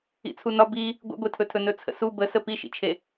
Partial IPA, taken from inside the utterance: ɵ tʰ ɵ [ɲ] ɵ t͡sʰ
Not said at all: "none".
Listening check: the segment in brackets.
n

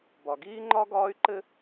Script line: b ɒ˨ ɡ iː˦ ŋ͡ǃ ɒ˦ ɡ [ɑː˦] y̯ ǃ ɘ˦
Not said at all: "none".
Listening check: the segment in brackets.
ɒː˦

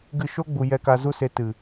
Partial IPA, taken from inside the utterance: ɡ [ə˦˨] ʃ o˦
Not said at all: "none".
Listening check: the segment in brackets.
ɨ˦˨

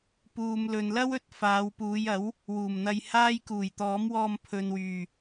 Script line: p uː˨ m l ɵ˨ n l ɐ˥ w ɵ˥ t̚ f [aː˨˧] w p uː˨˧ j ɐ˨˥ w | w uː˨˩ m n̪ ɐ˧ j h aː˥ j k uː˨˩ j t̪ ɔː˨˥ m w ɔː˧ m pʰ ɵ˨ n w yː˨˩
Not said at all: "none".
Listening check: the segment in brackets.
aː˨˧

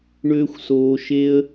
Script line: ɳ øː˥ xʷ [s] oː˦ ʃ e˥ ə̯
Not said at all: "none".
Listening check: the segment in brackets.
s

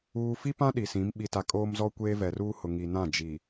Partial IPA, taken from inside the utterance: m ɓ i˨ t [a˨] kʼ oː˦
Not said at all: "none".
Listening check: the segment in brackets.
a˨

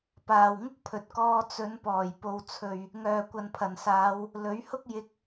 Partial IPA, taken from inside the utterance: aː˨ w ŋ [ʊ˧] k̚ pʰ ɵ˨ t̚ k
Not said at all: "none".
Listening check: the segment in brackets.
ʊ˥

